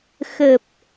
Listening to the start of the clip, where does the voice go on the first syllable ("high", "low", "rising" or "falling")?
low